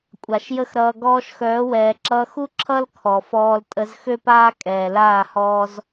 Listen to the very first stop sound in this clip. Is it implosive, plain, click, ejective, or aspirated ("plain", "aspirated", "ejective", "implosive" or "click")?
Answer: ejective